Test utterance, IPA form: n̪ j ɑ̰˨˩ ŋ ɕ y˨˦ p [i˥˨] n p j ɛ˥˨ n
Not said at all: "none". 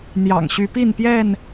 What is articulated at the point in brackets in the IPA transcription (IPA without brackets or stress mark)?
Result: i˥˨